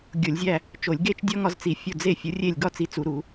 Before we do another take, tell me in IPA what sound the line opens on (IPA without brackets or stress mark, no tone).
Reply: ɡʲ